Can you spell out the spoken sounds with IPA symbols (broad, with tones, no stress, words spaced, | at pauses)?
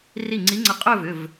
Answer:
ri˧˩ŋ͡ǀi˨˦ŋ͡ǀɐ˧˩ qʼɵ˥˧ vʏ˩˧˩v